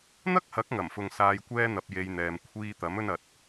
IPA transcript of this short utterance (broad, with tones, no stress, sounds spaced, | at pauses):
n̪ ɐ˥ k̚ h ɐ˨˥ k̚ ŋ ɐ˨˩ m f ʊ˨ ŋ s aː˧ j kʷ ɛː˥ n̪ ɐ˧ p̚ j e˧ j n̪ ɛː˨ m kʷʰ iː˧ t̪ ɐ˨˥ m ɵ˥ n ɐ˨˥ t̚